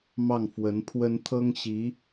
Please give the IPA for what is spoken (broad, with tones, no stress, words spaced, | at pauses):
mɑ˥˩ŋfwə˧˥npʰwə˥n t̪ʰɤ˥ŋɕi˧˥